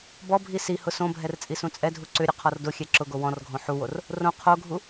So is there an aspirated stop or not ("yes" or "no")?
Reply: yes